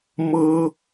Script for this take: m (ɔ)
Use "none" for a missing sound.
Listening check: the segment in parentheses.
ɤ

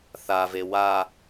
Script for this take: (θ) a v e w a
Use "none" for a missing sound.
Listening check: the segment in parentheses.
θ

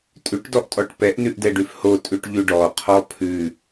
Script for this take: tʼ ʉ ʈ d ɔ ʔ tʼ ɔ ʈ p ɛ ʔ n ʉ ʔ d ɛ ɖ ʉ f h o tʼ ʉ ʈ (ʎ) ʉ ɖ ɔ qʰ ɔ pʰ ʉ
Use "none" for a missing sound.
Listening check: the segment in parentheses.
ʎ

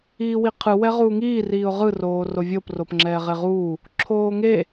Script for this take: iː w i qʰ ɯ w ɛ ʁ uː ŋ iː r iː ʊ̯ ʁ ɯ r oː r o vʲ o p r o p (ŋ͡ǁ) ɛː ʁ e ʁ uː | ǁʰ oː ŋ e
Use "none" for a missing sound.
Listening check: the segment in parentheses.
ŋ͡ǁ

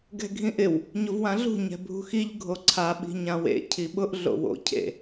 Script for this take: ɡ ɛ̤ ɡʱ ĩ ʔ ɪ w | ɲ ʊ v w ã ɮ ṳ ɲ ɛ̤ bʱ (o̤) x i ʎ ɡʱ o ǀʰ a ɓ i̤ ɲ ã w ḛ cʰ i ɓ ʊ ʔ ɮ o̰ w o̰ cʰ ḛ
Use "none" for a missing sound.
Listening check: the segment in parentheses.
ṳ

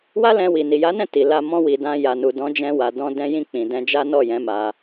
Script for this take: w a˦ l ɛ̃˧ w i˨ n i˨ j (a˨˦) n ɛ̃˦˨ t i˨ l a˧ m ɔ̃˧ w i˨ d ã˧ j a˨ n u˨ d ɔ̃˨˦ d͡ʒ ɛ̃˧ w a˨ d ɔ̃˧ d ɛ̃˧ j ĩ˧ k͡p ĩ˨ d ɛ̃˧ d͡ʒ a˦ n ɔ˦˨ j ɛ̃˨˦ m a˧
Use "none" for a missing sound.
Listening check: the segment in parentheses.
a˨˦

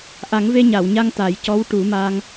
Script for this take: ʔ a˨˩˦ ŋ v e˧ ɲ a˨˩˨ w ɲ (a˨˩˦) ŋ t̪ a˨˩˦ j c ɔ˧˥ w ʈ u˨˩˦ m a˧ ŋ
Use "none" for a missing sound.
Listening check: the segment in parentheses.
a˧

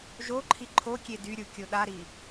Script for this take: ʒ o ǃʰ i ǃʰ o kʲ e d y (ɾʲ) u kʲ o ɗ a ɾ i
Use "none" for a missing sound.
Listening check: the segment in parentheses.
ɾʲ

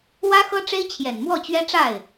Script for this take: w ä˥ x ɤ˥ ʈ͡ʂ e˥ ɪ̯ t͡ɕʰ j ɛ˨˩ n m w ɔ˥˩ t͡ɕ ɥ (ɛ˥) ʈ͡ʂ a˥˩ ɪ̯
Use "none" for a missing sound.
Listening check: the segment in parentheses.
ɛ˥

